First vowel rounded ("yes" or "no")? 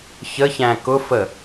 no